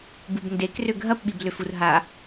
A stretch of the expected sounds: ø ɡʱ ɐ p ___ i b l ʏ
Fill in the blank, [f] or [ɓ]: ɓ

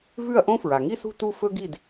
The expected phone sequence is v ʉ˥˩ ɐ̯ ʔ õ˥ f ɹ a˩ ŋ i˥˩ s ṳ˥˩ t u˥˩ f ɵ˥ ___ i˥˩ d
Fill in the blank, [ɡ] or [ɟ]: ɡ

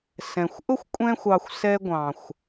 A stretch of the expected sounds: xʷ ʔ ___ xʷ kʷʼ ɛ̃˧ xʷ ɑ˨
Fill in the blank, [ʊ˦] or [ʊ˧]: ʊ˦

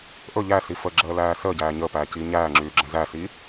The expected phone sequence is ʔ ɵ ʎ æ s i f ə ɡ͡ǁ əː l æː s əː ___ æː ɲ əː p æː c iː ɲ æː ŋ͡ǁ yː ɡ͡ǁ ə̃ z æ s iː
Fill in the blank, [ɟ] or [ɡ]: ɟ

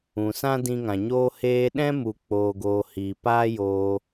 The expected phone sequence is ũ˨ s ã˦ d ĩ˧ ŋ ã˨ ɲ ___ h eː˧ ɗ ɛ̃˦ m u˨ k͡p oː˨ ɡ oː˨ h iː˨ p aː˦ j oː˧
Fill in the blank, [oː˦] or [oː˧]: oː˧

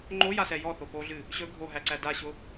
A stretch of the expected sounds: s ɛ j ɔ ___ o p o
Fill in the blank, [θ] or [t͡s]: θ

